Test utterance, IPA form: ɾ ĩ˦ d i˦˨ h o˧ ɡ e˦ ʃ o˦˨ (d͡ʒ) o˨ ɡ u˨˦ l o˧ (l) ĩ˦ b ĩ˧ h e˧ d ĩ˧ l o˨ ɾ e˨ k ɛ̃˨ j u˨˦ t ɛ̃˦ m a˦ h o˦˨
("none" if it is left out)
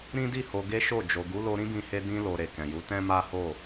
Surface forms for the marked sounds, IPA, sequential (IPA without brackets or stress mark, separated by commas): d͡ʒ, ɾ